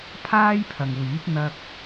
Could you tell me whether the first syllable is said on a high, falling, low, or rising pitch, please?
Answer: high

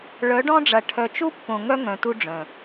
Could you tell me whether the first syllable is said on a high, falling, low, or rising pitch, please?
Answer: rising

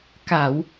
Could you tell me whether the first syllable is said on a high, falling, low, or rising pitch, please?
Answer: low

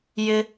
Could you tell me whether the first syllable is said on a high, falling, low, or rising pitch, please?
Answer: high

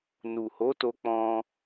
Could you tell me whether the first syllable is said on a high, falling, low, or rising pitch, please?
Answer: low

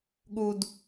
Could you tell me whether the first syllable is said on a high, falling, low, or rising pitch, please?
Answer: low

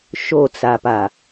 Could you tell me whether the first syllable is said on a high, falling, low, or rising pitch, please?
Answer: falling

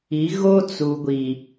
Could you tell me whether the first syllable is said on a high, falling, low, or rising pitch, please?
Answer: rising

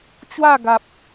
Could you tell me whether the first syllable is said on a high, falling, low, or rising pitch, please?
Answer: falling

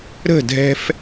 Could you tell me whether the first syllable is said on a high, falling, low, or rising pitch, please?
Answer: falling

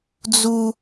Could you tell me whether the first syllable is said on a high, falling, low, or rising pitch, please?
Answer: high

